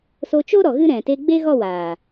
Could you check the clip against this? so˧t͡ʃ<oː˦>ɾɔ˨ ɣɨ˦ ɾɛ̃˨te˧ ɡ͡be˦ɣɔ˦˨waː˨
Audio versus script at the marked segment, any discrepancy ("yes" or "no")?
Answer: yes